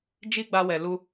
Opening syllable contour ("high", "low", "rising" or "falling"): high